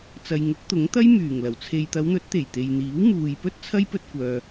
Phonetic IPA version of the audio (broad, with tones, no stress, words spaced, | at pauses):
t͡sɐ˨j ŋʊ˨˥k̚t̪ʊ˨˥ŋt̪ɐ˥j myː˨˩ŋlɐ˨˩w t͡sʰe˨jt̪ɐ˨˧wn̪ɵ˨˥t̚t̪e˨˩j t̪e˨jn̪iː˨˥wmuː˨jpɵ˥t̚ t͡sʰɐ˥jpɵ˧t̚kʷœː˨